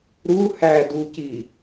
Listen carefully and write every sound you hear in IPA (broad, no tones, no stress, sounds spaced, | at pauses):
ɾ u h æ d u c i